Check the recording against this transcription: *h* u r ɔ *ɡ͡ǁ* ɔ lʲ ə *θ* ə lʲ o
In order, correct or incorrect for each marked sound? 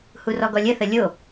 correct, incorrect: ɡ, correct

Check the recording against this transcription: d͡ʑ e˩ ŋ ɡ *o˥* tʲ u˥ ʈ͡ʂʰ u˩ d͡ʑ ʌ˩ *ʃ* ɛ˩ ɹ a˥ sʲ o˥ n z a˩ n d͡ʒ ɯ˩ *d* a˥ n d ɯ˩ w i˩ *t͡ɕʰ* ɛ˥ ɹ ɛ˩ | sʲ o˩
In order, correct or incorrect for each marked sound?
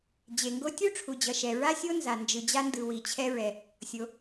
correct, correct, incorrect: d͡ʑ, correct

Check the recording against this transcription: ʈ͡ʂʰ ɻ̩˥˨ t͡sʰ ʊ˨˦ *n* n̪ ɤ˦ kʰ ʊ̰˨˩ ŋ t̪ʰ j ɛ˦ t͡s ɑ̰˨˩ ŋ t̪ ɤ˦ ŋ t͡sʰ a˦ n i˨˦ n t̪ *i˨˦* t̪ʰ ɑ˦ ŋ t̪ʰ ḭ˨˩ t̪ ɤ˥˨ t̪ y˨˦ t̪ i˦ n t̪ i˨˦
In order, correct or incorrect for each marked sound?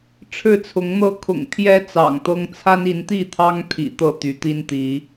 incorrect: ŋ, incorrect: i˥˨

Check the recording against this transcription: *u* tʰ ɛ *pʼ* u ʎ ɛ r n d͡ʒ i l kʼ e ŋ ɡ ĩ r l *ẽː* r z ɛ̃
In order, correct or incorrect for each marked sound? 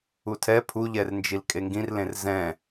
correct, incorrect: pʰ, incorrect: ẽ

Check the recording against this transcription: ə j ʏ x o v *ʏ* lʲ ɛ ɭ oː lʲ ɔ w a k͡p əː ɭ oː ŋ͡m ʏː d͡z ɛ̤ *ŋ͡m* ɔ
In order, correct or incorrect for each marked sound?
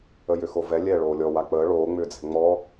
incorrect: ɛ, correct

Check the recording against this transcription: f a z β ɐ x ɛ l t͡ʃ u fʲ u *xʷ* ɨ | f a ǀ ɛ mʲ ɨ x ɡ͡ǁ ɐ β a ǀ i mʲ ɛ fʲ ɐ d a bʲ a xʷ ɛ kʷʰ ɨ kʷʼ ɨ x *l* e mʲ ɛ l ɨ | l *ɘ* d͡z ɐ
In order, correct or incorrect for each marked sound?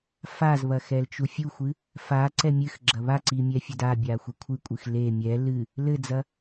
correct, correct, correct

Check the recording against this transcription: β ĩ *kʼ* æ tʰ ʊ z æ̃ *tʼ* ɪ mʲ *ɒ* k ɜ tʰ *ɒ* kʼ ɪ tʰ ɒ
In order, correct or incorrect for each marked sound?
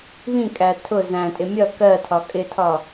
correct, correct, incorrect: ʌ, correct

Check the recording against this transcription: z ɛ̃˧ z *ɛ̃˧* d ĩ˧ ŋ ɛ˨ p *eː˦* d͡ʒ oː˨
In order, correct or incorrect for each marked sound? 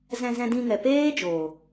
correct, correct

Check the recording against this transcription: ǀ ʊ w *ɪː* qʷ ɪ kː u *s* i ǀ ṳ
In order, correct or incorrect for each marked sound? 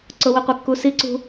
incorrect: ɪ, correct

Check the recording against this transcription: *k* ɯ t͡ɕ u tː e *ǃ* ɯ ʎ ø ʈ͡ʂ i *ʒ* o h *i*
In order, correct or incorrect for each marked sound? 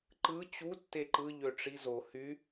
incorrect: ǃ, correct, incorrect: z, incorrect: y

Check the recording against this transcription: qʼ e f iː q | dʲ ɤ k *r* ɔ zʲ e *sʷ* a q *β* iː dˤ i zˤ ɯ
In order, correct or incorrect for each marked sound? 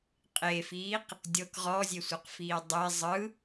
incorrect: ʁ, correct, incorrect: f

